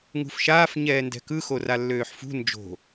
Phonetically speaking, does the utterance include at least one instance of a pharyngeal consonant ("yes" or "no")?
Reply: yes